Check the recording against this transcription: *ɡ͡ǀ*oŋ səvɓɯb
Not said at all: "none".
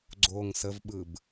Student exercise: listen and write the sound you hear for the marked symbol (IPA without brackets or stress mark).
ɡ͡ǀ